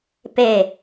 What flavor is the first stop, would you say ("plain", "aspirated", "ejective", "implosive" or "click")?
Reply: plain